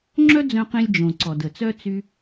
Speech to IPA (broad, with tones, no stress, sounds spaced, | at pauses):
ŋ͡ǁ œ˥ d͡z œ̃˧ q ĩ˧ lʲ d͡ʒ õ˩ ǀ ɔ˩ d ə˩ t͡s œ˥ t͡s y˧